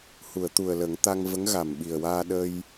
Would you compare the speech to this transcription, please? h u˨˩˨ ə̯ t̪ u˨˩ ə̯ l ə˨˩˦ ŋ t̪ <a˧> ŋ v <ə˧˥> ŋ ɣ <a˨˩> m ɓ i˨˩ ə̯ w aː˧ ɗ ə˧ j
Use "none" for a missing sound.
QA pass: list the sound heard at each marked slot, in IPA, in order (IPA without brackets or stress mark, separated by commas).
a˧, ə˧˥, a˨˩